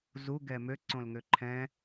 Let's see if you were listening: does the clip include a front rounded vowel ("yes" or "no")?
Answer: yes